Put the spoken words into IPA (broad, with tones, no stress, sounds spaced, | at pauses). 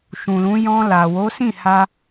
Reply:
ʃ ũ˨ l ũ˨˦ j ɔ̃˧ l a˨ w o˨˦ s ĩ˦˨ h a˧